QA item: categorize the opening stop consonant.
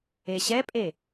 ejective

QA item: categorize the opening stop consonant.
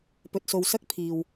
plain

